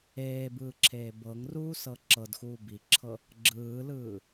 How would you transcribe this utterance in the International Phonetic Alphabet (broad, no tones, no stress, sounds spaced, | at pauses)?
eː b ɯː ǁʰ eː b ɤ ŋ r uː s ɤ ǁ ɤ d x uː b i ǁʰ ɤ | ɡ͡ǁ ɯː l ɯː